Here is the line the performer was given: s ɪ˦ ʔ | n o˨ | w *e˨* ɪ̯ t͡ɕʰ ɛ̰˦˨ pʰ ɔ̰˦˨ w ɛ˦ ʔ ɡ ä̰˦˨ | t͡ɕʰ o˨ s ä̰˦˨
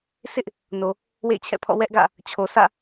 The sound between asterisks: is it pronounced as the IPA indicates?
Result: no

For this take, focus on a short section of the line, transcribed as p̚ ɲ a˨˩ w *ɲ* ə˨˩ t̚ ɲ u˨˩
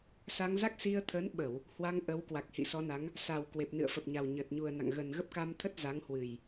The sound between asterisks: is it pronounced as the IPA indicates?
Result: yes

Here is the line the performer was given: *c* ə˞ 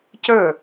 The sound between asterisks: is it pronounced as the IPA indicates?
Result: yes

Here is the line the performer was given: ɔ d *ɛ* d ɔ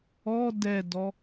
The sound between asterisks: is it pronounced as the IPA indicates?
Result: yes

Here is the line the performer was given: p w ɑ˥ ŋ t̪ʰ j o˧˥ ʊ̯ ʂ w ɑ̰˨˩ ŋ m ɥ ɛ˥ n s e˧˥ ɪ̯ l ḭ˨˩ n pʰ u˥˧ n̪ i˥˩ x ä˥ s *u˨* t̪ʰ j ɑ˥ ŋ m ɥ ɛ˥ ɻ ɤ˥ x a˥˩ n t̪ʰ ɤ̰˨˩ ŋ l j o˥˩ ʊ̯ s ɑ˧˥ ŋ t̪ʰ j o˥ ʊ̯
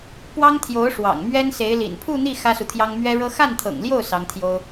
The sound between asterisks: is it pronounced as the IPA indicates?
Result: yes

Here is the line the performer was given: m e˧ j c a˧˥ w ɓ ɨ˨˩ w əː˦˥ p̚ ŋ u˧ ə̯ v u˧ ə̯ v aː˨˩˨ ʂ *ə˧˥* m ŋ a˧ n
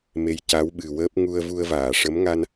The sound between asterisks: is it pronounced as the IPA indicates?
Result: yes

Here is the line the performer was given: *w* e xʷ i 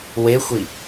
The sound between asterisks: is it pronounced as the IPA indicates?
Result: yes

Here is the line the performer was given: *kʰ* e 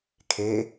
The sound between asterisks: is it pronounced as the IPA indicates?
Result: yes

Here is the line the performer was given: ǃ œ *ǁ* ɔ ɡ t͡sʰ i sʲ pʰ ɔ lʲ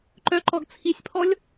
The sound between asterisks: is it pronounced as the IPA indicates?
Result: no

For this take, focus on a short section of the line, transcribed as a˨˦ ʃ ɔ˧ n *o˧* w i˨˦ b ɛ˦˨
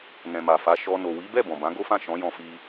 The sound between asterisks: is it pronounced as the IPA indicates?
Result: no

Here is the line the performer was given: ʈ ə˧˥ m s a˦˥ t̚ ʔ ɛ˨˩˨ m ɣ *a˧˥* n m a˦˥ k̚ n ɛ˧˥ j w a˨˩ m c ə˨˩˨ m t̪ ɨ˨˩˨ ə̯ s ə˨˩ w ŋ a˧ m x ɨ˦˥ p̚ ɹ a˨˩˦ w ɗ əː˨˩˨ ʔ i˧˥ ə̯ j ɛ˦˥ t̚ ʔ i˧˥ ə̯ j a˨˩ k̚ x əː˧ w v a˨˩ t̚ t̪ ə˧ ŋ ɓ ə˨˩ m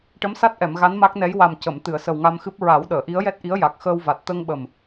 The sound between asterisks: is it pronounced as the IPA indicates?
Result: yes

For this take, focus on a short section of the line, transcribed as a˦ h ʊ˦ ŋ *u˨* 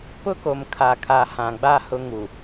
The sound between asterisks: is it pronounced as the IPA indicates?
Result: yes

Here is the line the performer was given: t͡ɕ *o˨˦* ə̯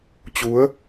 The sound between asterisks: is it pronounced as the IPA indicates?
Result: no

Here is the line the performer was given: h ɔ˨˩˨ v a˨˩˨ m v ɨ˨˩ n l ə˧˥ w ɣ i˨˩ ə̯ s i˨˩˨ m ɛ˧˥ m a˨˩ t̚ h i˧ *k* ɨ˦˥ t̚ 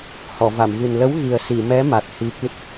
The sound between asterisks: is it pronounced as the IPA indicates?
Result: yes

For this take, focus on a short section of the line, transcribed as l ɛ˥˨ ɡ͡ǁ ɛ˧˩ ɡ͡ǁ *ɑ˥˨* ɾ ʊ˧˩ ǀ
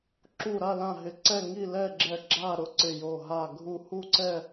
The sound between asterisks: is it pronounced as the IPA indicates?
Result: no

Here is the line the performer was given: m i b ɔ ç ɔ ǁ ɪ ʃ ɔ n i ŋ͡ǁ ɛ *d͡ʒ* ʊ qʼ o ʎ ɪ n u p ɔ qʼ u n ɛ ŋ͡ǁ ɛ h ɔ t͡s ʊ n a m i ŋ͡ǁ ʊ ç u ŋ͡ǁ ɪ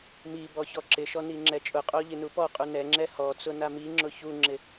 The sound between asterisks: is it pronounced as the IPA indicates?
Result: no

